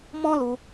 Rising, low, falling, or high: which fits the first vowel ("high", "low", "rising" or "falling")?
high